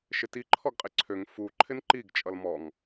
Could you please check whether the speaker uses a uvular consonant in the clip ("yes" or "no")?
yes